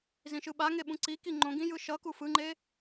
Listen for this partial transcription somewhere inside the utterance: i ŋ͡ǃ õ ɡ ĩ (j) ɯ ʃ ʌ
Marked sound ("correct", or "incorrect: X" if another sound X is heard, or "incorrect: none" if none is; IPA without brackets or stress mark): correct